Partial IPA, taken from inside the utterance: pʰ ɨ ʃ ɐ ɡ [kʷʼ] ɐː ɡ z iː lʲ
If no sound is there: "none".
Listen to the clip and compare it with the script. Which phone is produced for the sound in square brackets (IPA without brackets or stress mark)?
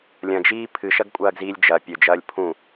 kʷʼ